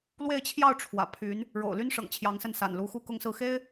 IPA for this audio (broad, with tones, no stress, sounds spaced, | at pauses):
l w e˥˧ ɪ̯ t͡ɕʰ j ɑ˥˩ ʊ̯ ʈ͡ʂʰ w ä̰˨˩ pʰ y˧˥ n | ɻ o̰˨˩ ʊ̯ l y˥ n ʂ ɤ̰˨˩ ŋ t͡ɕʰ j ɑ˧˥ ŋ s ə˥˩ n s a̰˨˩ n l u˧˥ x u˥˧ k ʊ˥˧ ŋ s ɹ̩˥˩ x e˥ ɪ̯